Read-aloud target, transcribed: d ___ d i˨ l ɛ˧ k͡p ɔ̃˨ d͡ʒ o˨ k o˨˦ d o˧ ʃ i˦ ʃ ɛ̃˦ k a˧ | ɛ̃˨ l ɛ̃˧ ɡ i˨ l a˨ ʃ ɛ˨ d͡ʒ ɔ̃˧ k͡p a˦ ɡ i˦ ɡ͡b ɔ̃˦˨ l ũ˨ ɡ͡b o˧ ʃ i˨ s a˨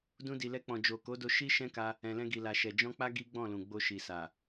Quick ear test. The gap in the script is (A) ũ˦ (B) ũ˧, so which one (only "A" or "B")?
B